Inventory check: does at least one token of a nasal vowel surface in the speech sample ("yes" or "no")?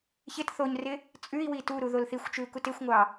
no